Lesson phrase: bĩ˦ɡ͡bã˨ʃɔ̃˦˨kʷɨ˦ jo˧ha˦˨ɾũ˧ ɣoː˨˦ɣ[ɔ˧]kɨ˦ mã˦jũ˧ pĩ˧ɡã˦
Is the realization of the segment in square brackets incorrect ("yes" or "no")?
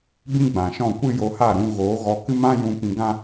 no